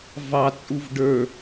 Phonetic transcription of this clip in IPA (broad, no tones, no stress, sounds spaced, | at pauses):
v ɑ t͡sʼ u v ɖ ə˞